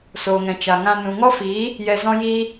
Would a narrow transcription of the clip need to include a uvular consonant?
no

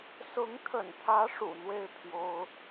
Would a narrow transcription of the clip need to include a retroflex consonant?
yes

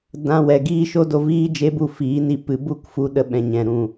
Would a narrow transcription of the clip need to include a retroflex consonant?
no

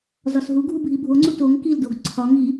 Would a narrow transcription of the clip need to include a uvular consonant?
no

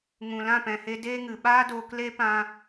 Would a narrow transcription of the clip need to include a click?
no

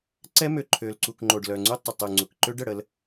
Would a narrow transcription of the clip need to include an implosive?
no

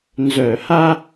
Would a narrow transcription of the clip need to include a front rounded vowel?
yes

